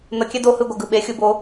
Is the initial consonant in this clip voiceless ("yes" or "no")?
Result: no